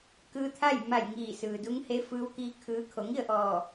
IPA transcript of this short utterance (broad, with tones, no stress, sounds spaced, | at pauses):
k ɯː˧ t̪ʰ a˥˨ j m a˧˩ j ŋ iː˧˩ s ɯː˩ d u˧˥ ŋ h e˧˥ f ɯː˧˥ w k iː˧˥ kʰ ɯː˧˥ kʰ o˩˧ ŋ i˥˨ ə̯ ʔ ɔː˧˩